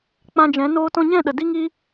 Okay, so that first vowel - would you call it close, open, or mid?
open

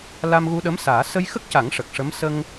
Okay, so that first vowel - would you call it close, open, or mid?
open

